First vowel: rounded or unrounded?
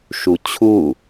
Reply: rounded